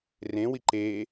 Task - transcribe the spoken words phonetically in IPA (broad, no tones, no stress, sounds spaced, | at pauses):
r ẽ w i ǃ e